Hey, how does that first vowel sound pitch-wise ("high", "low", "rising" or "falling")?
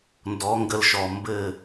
rising